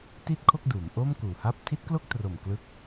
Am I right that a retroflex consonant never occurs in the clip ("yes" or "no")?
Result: yes